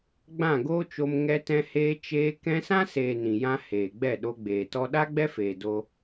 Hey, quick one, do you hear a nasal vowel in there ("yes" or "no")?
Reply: yes